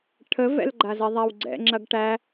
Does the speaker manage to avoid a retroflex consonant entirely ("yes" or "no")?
no